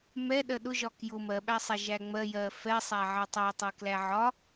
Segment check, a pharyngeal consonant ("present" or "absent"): present